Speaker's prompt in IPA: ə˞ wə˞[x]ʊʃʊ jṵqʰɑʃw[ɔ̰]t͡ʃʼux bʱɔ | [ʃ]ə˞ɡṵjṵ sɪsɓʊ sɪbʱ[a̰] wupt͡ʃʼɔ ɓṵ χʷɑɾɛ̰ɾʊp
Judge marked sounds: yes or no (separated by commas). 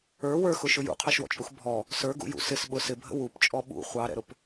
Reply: yes, yes, no, no